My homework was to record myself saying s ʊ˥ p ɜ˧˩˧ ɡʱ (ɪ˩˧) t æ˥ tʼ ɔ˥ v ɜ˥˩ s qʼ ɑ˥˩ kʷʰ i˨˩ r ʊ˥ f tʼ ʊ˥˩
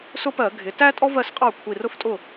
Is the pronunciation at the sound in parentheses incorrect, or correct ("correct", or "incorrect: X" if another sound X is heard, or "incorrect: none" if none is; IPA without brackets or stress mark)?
correct